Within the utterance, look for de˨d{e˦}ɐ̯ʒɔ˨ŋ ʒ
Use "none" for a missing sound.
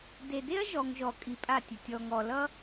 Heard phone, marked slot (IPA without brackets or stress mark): e˦